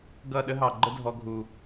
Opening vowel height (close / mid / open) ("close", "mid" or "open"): mid